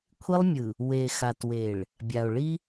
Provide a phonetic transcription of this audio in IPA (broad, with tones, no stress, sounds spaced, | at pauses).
kʷʰ i˦ lˠ mʲ ɯ˨ | w e˨ x a˨ t w e˨ ɭ | bʲ a˨ o̯ ɭ i˦